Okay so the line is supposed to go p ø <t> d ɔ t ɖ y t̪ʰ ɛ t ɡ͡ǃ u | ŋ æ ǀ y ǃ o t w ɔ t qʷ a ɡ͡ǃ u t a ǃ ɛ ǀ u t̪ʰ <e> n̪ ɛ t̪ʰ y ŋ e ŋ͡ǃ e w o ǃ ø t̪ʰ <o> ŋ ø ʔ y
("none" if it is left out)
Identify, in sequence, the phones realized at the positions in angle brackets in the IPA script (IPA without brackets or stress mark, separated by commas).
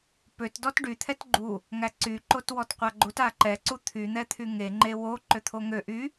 t, y, o